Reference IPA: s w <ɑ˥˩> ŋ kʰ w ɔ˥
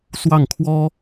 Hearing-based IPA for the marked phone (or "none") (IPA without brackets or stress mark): ɑ˥˩